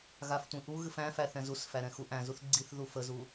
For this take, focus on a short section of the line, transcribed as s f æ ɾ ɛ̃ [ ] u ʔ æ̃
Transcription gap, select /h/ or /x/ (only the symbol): x